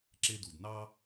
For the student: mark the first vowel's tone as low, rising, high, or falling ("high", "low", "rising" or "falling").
high